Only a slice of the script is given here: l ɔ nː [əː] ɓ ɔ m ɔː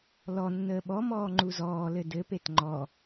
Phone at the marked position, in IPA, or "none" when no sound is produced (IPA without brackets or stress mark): əː